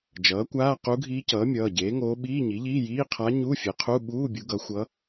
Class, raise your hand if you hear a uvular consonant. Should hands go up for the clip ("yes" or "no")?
yes